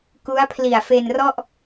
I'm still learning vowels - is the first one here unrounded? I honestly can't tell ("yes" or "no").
no